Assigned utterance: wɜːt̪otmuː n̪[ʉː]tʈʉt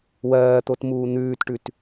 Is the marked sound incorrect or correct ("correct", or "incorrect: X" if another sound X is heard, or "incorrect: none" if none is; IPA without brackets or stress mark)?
correct